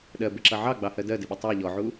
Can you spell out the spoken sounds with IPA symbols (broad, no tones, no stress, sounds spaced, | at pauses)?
ɗ ɜ b ɪ ǁ ʌ ʕ ɑ ɡ͡b ɑ h ɜ d ɜ d ɪ ɓ ʊ tˤ ɑ ʎ ɔ ʕ u